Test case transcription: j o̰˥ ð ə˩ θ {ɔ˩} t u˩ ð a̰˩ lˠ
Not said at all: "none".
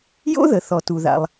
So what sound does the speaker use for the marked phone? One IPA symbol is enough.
ɔ˩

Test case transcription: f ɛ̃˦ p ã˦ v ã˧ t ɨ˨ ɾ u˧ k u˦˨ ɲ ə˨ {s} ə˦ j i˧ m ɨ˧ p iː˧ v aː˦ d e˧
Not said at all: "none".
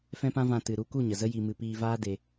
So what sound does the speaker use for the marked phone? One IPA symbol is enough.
z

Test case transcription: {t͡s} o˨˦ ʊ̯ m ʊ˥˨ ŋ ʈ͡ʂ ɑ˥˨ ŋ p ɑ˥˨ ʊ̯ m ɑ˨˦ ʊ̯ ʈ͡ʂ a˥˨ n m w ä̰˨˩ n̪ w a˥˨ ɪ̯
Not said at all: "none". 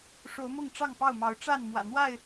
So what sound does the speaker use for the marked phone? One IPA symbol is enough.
ʂ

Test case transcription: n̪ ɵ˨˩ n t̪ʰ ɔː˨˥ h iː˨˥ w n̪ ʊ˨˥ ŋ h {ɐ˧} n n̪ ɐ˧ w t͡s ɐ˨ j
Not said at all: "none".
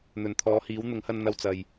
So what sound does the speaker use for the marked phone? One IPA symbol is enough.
ɐ˧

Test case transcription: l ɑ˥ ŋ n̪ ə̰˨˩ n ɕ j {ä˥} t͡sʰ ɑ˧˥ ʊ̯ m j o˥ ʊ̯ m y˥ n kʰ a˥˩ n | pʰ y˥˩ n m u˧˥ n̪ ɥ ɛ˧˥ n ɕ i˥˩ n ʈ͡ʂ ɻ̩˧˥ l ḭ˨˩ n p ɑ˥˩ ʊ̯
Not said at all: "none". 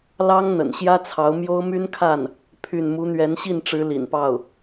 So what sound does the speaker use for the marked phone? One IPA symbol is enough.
ä˥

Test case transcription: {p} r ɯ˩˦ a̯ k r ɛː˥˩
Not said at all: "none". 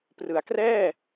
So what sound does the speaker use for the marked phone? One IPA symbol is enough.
p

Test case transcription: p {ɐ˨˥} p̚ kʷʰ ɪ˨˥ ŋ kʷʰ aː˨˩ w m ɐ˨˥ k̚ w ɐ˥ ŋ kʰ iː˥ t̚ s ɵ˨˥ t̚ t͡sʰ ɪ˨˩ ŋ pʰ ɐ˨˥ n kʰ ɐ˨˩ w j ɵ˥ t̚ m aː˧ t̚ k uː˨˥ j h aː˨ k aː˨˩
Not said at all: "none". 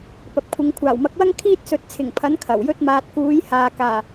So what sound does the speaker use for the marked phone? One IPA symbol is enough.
ɐ˨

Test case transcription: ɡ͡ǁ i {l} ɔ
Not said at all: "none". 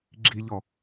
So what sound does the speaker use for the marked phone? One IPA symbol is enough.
ʎ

